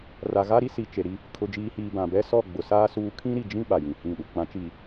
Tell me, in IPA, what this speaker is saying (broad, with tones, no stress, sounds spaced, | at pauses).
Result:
r a˨ ɣ a˦ ɾ i˦ s i˨ t͡ʃ e˨ ɾ i˦ | kʰ ʊ˨ d͡ʒ iː˨ h iː˨ b ã˨ b ɛ˦ s ɔ˦˨ ɡ͡b ʊ˨ s aː˦ s uː˦ kʰ ĩ˦ ɾ i˨ d͡ʒ ĩ˦ ɓ a˨ j ĩ˨ h ĩ˦˨ ɗ u˨ k͡p ã˨˦ t͡ʃ i˨